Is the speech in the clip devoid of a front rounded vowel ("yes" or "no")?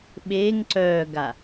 no